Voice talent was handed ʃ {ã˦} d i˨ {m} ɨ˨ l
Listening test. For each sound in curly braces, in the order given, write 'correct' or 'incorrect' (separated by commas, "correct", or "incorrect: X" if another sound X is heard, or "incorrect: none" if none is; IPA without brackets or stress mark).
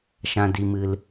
incorrect: ã˨, correct